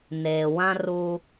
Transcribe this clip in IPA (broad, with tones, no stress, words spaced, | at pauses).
neː˨wã˦ ru˦